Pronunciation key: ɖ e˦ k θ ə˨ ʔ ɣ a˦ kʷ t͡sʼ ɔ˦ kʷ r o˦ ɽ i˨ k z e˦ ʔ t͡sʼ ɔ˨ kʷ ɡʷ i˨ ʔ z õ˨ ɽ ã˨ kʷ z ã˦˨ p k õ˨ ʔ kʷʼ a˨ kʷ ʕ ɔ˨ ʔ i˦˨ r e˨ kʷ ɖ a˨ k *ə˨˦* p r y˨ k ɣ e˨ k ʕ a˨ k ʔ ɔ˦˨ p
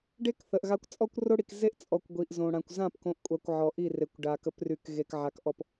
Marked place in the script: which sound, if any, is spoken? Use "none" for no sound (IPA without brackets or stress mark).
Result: ə˨˦